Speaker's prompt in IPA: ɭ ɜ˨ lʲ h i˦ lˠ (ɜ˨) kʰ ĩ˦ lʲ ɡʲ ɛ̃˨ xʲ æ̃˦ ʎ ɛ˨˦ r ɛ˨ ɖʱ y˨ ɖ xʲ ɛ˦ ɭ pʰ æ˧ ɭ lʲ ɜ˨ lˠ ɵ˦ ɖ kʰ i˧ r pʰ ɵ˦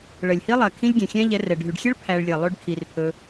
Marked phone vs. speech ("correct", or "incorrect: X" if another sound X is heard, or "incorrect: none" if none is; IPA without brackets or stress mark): correct